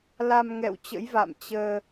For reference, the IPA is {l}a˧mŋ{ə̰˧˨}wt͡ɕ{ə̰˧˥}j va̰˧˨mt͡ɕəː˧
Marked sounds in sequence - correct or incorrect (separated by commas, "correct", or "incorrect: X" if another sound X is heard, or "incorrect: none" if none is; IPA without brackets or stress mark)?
correct, incorrect: ɛ̰˧˨, correct